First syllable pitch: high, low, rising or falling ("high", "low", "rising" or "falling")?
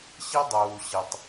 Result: high